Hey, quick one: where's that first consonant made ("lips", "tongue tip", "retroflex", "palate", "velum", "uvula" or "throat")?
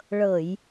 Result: retroflex